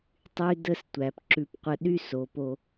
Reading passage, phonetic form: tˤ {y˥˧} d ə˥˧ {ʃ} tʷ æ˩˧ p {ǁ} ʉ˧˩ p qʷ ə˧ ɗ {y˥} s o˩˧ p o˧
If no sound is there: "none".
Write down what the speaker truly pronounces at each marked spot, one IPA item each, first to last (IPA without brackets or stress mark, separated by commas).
y˥, s, ǁ, y˥